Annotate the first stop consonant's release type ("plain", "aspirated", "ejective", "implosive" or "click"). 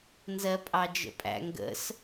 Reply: ejective